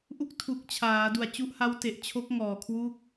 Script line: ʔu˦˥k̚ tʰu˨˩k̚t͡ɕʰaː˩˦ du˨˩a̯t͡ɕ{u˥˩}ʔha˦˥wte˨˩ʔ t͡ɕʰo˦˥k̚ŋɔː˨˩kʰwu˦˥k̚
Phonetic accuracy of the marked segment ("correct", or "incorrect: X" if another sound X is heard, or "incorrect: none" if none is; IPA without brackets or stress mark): incorrect: u˦˥